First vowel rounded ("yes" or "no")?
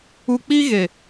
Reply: yes